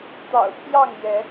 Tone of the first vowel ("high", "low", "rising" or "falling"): low